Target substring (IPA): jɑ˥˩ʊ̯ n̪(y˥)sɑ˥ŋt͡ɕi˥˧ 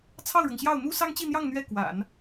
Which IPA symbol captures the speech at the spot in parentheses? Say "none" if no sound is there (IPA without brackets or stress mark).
u˥